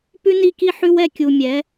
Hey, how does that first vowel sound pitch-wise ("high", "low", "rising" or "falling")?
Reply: high